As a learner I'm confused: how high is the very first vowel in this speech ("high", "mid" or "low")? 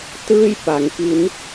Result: high